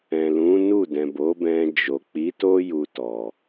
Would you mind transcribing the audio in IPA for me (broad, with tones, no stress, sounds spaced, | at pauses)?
ɛ̃˨ l ũ˨˦ n u˦˨ d ɛ̃˨ b o˨˦ b ɛ̃˧ d͡ʒ o˨ k͡p i˨˦ t o˦ j u˧ t ɔ˨